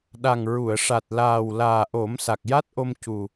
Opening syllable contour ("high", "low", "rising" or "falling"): low